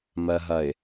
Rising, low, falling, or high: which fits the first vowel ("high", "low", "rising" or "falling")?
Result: low